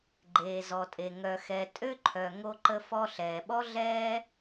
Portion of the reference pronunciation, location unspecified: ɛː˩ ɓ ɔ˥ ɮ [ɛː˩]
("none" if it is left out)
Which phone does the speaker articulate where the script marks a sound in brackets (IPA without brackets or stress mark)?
ɛː˥